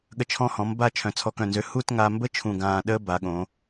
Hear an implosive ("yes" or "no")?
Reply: yes